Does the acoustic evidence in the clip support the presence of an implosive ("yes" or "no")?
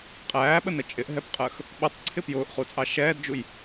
yes